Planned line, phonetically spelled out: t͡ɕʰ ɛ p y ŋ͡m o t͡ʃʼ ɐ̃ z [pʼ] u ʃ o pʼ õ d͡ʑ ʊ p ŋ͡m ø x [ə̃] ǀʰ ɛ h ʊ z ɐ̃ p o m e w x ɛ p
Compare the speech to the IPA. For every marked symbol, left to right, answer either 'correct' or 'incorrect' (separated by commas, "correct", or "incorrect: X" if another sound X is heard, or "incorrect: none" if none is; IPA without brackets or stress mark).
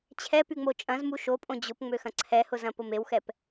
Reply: incorrect: m, incorrect: ɐ̃